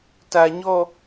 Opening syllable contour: low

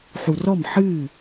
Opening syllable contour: low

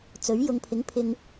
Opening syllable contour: rising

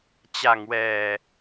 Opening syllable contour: low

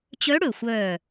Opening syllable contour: rising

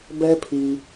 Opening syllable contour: high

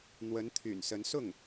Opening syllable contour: rising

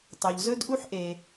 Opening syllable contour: low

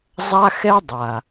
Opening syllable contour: high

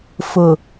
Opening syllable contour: low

